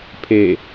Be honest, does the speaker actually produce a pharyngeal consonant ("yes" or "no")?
no